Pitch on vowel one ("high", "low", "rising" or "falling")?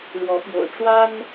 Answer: rising